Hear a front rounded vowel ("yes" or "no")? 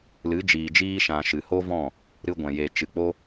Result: no